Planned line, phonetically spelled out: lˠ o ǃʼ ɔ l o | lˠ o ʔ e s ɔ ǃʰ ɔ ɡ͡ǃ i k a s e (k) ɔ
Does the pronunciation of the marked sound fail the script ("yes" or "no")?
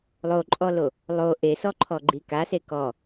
no